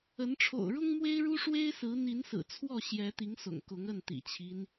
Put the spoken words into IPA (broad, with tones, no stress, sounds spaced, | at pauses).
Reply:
ə˨˦ n ʈ͡ʂʰ o̰˨˩ ʊ̯ ɻ ʊ˦ ŋ m w e˦ ɪ̯ ɻ u˦ ʂ w e˦ ɪ̯ s ɹ̩˨˦ n̪ i˨˦ n s ɹ̩˨˩ t͡sʰ w ɔ˥˨ ɕ j ɛ˨˦ t̪ i˨˦ ŋ s ʊ̰˨˩ ŋ k ʊ˨˦ ŋ ə˥˨ n t̪ ḭ˨˩ t͡ɕʰ i˦ n